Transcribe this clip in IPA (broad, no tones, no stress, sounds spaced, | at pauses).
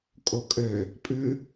kʼ o kʼ ø | pʼ ʉ